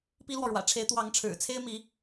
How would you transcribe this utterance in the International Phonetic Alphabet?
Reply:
pi˥lwɔ˨ɻwä̰˨˩ ʈ͡ʂʰe˧˥ɪ̯t̪wɑ˧˥ŋʈ͡ʂʰɻ̩˨˩ t͡sʰe˥ɪ̯mi˧˥

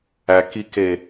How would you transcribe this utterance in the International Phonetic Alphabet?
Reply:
ækike

